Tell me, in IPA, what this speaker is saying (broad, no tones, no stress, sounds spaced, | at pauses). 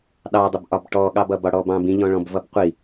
ɗ ɑ dˤ ɪ b ʔ ɒ b ʈ ɔ ɠ ɑ b ʌ b ɒ ɽ ɔ b ɑ̃ b ĩ ʎ ɔ̃ ɭ ɔ̃ b v ʌ b qʷ i